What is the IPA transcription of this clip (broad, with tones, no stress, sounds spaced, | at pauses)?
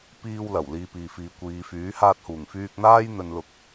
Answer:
p iː˧ w l ɐ˨˩ w l iː˧ p iː˨ f iː˨˧ kʷ iː˨˧ f yː˨˥ h aː˧ t̚ h uː˨˩ ŋ f yː˧ k̚ n̪ aː˥ j n̪ ɵ˧ n l ʊ˧ k̚